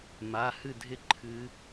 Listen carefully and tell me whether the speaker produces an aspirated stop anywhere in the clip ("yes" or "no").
yes